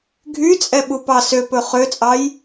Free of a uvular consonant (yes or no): no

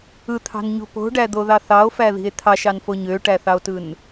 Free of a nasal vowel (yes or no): yes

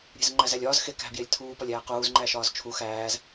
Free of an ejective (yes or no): yes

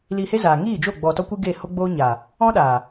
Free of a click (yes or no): yes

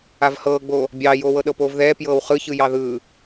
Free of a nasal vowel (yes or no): yes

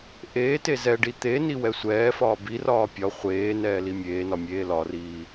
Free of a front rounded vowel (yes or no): yes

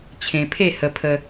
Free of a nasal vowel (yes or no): no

